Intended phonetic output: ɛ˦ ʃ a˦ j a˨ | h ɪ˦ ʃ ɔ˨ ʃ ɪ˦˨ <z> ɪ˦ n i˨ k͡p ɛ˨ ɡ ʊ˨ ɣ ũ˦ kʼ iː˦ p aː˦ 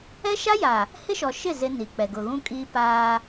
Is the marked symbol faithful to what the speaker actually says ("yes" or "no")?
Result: yes